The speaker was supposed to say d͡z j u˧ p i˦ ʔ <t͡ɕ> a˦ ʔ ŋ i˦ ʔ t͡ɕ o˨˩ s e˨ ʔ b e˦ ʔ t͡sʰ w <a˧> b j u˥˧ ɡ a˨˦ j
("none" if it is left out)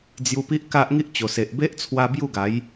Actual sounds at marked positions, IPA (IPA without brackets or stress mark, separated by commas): k, a˧